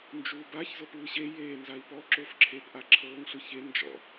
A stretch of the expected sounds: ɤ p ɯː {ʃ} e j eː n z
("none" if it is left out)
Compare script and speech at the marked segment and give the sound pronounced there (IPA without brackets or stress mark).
ɕ